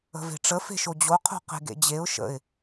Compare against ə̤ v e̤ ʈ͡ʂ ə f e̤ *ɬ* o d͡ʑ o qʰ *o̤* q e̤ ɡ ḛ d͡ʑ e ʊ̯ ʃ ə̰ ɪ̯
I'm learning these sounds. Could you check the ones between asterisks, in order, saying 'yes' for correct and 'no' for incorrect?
no, yes

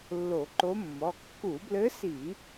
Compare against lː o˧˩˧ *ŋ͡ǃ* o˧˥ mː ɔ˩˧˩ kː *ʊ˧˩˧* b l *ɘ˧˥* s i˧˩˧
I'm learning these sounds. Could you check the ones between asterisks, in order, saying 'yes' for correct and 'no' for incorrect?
no, no, yes

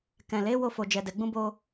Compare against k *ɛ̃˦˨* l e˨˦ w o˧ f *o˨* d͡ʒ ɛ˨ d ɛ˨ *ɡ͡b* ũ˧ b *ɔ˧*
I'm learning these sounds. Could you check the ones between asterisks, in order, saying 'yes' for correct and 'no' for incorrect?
no, yes, yes, no

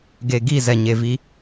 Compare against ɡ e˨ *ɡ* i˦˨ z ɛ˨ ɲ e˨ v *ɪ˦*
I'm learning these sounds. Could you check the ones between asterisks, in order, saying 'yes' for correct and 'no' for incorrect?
yes, no

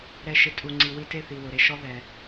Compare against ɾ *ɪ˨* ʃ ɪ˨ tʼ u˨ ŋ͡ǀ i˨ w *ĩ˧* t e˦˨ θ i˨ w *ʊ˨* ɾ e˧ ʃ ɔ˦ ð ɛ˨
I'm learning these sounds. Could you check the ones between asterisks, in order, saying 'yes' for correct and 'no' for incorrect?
no, no, yes

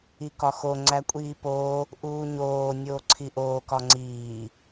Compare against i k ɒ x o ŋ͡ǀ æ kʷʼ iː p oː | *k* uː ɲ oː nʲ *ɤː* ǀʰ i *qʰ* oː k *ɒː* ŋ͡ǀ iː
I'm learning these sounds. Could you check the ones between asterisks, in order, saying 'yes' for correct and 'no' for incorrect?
no, no, no, no

